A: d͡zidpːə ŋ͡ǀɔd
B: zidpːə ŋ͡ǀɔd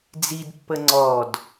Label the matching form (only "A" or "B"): A